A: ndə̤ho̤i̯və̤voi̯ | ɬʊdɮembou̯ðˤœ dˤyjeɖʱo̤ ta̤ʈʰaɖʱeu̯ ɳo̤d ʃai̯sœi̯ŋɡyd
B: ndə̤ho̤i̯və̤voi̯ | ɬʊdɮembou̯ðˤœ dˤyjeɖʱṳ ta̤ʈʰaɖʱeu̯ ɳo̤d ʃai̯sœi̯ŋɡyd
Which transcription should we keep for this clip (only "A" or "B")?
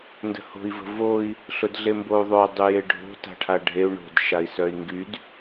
A